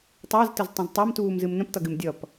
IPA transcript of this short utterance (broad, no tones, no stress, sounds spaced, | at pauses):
tˤ æ z t ə z tˤ ə̃ z tˤ æ m t uː m z ɨ m n ə̃ p t ʌ ɡ ɨ m dʲ ʌ p